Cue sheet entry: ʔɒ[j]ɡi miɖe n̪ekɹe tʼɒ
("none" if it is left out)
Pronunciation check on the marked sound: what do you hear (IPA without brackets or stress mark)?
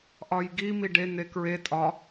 j